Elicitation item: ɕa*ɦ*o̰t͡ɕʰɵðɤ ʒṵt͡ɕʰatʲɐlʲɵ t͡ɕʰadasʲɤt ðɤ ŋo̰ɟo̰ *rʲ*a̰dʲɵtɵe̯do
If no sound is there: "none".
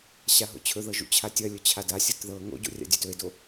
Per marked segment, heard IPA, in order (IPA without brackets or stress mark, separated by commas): ɦ, rʲ